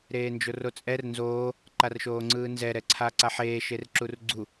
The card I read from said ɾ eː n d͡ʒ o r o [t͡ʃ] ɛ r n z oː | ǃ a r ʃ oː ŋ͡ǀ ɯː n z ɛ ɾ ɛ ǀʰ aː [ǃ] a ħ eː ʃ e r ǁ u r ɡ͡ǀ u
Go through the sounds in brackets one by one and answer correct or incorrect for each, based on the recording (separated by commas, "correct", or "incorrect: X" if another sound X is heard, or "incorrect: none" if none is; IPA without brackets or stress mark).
incorrect: t͡sʼ, incorrect: ǀ